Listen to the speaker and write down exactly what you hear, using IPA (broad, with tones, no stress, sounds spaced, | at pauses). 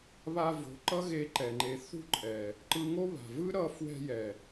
β a˧ v o̤˨˦ ǃ ʌ˦ ɣ e˧ ǃ ɛ˨ ŋ͡ǃ e˨˦ θ ṳ˦˨ ǃʼ ɛ˨ | ǃ ɯ˧ ŋ o˦ β a̤˨ v ɯ˦ ɾ ʌ˦˨ f w ɛ̤˧ j ɛ˨